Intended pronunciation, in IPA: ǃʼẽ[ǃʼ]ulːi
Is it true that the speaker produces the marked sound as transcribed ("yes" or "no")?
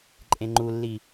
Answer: no